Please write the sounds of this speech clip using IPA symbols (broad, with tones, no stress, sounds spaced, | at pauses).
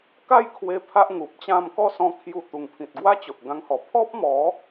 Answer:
k a˥˧ j kʰ w e˧ pʰ a˦ ʔ ŋ u˨ p̚ t͡ɕ ã˥˧ m k ɔ˥˧ s ɔ̃˧ kʰ j u˧ t̪ u˨˩ ŋ pʰ ĩ˨ t̚ ɡ w a˦ t͡ɕ o˨ ʔ ɡ ã˧ ŋ h ɔ˨˩ pʰ ɔ˦ p̚ m ɔ˨˦